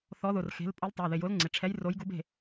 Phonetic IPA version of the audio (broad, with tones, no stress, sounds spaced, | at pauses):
θ ɔ˨˥ ð ʊ˩˧˩ r x e̤˨˥ l pʼ o˨˥ l tˤ a˩˧˩ ð ɪ˩˧˩ j ʊ˨˥ l ŋ͡ǀ ɪ˩˧˩ ʈ͡ʂʰ ɛ˨˥ j r o˨˥ j ɡ u˨˥ b e̤˩˧˩